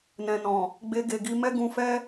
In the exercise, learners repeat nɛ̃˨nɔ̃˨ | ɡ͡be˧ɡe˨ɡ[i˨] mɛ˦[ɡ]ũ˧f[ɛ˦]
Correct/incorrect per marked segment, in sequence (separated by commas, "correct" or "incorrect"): incorrect, correct, correct